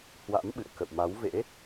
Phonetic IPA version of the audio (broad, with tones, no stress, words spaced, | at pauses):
hwa̰˧˥mɓɨ̰˧˨ə̯kə̰˧˨wma˨˦w vḛ˧˥